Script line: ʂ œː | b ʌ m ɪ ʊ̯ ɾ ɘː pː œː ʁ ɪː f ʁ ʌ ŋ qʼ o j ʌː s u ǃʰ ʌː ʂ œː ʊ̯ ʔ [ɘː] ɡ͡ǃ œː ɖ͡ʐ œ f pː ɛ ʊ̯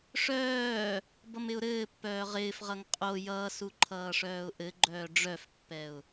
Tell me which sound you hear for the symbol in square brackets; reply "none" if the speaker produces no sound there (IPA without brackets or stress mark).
ɘ